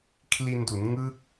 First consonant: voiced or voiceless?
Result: voiceless